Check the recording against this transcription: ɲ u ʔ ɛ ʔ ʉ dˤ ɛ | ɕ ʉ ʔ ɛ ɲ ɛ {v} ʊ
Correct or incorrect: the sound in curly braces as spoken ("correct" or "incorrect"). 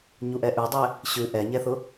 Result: incorrect